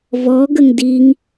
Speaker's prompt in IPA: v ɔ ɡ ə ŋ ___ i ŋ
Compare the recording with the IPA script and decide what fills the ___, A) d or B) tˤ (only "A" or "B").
A